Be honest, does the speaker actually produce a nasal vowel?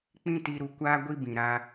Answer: yes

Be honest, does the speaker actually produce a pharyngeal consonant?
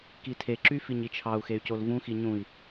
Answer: no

